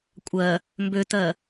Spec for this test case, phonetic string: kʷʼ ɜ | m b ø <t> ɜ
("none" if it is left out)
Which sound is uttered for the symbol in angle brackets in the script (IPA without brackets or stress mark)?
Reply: t